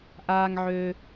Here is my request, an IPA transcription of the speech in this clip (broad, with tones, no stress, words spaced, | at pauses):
ʔaː˦ŋʕø˦